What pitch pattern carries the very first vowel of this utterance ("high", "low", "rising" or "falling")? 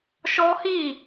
high